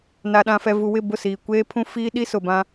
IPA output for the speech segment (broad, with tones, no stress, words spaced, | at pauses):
na˨ɗã˨fɛ˨ vu˨wɪ˦˨ bʊ˦˨siː˨kʷeː˦pʰũ˦ fiː˦ɗi˦sʊ˨bã˦